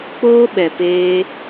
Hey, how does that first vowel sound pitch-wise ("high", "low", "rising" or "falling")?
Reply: high